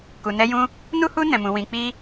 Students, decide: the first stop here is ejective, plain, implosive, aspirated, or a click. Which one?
plain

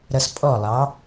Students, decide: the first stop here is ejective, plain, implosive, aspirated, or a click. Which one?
ejective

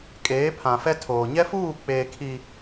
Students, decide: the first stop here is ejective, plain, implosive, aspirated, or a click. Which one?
ejective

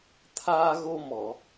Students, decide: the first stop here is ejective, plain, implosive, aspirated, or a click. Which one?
aspirated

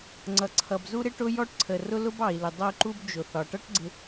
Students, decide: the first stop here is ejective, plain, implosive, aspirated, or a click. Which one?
click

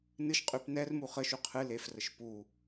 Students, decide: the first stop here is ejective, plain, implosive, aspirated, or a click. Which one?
ejective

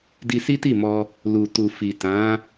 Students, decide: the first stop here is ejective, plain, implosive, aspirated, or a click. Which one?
plain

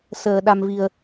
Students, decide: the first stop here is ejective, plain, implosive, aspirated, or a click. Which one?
implosive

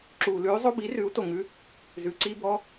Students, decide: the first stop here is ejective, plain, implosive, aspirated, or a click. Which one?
click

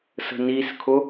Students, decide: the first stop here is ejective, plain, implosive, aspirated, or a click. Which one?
aspirated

